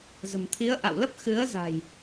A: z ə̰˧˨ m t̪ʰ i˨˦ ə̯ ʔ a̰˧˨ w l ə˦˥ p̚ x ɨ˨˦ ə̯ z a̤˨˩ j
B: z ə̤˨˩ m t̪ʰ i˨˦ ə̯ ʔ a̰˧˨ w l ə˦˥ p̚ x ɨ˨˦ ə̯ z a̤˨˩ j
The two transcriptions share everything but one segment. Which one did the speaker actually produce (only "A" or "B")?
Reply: B